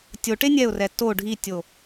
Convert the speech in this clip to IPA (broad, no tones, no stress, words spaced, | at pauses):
tʲoʈe nʲɛʊ̯rɛ to ɖʱitʲo